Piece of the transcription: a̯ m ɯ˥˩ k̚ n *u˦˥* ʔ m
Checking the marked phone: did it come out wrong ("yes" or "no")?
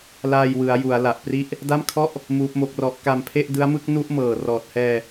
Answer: yes